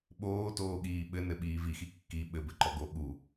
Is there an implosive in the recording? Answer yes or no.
yes